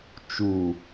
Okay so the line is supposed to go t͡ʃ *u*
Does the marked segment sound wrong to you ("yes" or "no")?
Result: no